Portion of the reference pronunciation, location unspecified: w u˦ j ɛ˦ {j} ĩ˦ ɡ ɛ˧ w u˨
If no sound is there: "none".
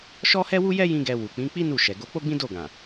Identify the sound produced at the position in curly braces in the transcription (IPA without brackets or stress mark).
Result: j